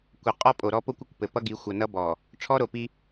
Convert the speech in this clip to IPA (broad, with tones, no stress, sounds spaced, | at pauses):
kʷ ɘ˨ qʼ ɔ˦ pʼ o˨ ɾ ɔ˦ p o˦ kʷ ʏ˨ kʷ p ɘ˨ p ʌ˦ ɡ i˨˦ xʷ ʌ˨ n ʌ˦ b ɔ˨ | ʈ͡ʂʰ ɔ˦ ɾ o˨ p i˦